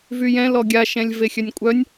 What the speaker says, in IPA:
v y j ɛ̃ l ɔ ɡʲ a ʃ ɛ̃ lʲ v e xʲ œ nʲ kʷʼ œ nʲ

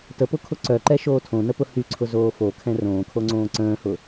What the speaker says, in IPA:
t ə p ʊ kʰ ʊ ǀ œ ǃ ɛ ʃ oː tʰ õ n ə p ʊ h y ǀʰ ʊ z oː f o kʰ ɛ̃ r õː kʰ o ŋ͡ǀ õː ǀ ə̃ː h ʊ

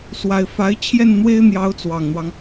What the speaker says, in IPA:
s w a˨˩ ɪ̯ f a˧˥ ɪ̯ t͡ɕʰ j ɛ˥˩ n n̪ w e˥ ɪ̯ n̪ j ɑ˧˥ ʊ̯ t͡s w ɑ˨˩ ŋ n̪ w ɑ˦ ŋ

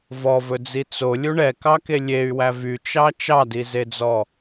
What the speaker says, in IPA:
v ɔ v ɵ d͡z i t͡s o lʲ u ɳ ɛ k ɑ k e lʲ e y̯ w æ v y t͡ʃ ɑ t͡ʃ ɑ d i z e d͡z ɔ

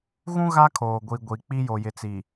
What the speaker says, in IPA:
ɣ ũ˦ ɣ a˦ kʰ oː˨ ɡʷ i˨ ɡʷ i˨ k͡p i˦ j o˨ j ɪ˨ t͡s i˨

